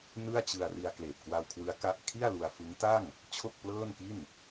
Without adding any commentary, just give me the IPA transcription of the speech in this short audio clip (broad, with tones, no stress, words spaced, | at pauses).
nɯ˥˩a̯t͡ɕɯ˧a̯ ri˧a̯kleː˨˩p̚ kwa˧wkʰwɯ˦˥a̯ ka˦˥ʔkʰi˥˩a̯lu˧a̯ fɯ˦˥ŋ ta˥˩ŋ | t͡ɕʰo˥˩k̚plɤː˥˩nki˥˩n